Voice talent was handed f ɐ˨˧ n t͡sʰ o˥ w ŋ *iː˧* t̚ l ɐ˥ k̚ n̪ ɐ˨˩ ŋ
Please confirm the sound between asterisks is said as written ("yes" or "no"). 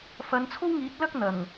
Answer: no